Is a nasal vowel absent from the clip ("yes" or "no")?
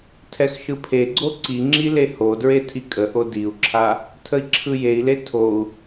yes